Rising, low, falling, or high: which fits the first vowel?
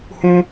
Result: high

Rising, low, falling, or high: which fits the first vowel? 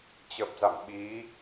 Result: low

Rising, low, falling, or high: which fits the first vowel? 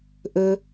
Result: low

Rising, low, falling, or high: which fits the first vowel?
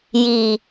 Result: low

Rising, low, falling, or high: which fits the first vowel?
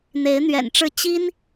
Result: rising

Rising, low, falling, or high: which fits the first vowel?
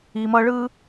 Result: low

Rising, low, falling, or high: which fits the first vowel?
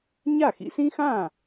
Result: falling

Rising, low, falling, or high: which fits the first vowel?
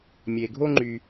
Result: low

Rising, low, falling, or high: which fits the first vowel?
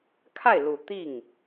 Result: falling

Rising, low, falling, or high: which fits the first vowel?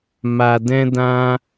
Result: low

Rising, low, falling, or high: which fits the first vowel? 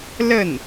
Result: falling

